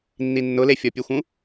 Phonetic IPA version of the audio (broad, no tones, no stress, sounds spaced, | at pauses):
nː i nː ʊ l e fʲ ɔ pʲ e xʷ ũ